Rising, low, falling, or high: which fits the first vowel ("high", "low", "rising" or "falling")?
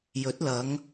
rising